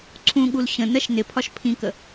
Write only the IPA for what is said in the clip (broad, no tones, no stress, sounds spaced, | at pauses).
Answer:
ǀʰ ũ ɠ u l ɕ ə̃ n ɜ ʃ n ɪ pʰ ɒ ʃ pʰ ĩ k ə